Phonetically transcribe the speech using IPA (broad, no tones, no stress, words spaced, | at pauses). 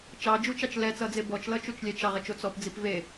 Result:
t͡ʃɑd͡ʒut͡ʃɑt͡ʃ lɛt͡sʌd͡ze bɔt͡ʃlʌt͡ʃut͡ʃ lʲɛt͡ʃ ɑʁet͡ʃo t͡sɔpd͡zip ve